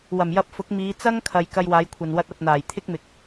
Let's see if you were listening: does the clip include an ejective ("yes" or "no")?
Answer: no